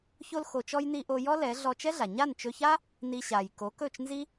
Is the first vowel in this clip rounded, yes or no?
yes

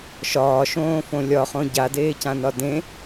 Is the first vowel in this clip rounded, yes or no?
yes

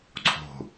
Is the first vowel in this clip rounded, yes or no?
yes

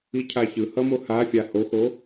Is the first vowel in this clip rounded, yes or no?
no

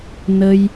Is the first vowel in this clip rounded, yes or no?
no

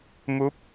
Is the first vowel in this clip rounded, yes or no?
yes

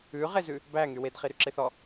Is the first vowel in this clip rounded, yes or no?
yes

